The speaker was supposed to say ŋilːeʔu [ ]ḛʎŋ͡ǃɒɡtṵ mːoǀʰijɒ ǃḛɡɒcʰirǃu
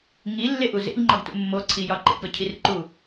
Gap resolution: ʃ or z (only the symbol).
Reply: z